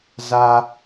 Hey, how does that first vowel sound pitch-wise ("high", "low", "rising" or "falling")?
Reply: high